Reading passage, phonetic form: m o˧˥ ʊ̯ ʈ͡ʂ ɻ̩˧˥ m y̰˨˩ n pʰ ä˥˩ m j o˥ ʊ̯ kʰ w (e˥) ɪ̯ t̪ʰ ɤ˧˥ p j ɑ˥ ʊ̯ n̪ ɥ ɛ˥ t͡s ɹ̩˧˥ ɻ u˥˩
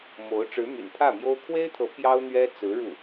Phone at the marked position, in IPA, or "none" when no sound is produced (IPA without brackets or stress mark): e˥